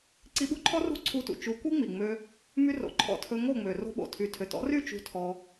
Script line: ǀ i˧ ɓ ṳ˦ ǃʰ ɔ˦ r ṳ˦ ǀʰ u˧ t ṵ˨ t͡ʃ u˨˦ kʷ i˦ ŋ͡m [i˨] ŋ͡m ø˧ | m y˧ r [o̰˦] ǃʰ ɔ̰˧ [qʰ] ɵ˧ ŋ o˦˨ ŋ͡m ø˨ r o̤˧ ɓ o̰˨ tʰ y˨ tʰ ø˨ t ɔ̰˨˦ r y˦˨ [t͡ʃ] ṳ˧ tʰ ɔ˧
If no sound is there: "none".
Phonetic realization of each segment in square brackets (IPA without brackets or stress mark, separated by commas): i˨, o̰˨, tʰ, t͡ʃ